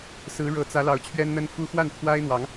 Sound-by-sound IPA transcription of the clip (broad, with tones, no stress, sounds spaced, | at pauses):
s ɹ̩˨˦ ɻ ɤ˨˩ t͡s ä˨˦ l ɑ˨˦ ʊ̯ t͡ɕʰ ɥ ɛ˦ n n̪ ə˦ n f u˦ x w a˥˨ n t̪ʰ w a˦ ɪ̯ n̪ w ɑ˨˦ ŋ